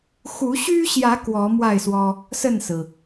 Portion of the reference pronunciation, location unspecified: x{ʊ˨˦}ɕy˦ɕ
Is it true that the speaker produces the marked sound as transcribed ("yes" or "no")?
no